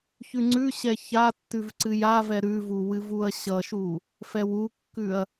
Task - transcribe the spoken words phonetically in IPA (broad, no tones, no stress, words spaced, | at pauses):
çʉŋ͡ǀʉɕɛ çatːʉv ǀɨjavɛ ɾʉvu wɨvuɐ̯ɕʌʃu | fɛwukːʉɐ̯